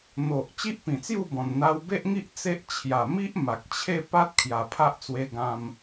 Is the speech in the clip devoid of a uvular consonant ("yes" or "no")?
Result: yes